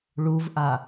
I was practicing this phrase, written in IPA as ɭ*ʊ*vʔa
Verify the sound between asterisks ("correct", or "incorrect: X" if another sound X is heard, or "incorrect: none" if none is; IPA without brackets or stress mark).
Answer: incorrect: u